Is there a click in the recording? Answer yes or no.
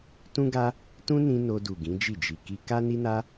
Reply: no